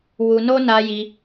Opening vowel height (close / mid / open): close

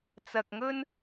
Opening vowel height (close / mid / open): open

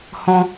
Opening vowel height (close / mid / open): mid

